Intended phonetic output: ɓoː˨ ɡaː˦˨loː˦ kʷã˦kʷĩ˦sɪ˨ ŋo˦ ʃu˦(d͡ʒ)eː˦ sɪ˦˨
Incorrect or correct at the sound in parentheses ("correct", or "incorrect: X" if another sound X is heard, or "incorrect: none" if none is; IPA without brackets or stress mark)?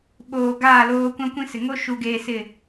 incorrect: ɡ